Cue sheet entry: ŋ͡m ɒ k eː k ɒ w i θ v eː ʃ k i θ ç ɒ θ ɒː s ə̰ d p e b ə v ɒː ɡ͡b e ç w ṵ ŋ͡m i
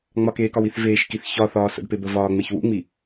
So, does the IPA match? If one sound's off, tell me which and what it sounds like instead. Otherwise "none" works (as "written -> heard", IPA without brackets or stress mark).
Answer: ɡ͡b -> ŋ͡m